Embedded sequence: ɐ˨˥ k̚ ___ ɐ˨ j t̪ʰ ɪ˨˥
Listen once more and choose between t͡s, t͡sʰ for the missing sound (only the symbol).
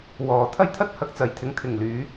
t͡s